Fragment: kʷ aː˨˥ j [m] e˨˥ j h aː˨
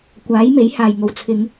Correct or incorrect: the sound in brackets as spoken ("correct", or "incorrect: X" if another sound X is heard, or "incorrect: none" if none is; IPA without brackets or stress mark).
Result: correct